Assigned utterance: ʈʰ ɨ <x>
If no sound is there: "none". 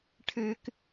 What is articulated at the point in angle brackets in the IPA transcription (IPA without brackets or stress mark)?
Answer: k